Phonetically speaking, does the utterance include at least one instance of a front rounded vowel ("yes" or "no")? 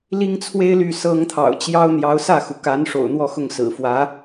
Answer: yes